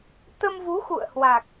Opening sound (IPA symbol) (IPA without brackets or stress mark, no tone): t̪